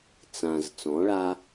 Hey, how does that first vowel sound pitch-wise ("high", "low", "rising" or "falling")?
low